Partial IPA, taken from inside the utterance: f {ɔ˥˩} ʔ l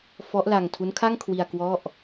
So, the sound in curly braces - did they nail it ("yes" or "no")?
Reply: no